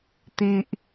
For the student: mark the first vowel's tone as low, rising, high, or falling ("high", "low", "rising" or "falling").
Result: high